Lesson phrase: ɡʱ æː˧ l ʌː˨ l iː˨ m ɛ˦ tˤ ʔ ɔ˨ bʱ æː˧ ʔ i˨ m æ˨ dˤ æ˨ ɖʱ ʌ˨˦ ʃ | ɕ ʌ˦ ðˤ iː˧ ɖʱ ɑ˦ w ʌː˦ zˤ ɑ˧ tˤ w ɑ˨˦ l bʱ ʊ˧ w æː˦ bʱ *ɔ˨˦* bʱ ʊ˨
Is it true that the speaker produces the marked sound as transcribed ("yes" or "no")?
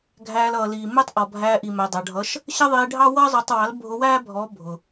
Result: yes